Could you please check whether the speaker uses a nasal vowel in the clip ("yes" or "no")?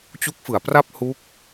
no